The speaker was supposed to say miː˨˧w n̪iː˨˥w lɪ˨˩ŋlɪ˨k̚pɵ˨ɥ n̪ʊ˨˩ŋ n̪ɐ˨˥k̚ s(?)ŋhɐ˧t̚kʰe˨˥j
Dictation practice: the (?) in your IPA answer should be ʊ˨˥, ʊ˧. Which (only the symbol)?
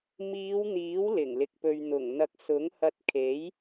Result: ʊ˨˥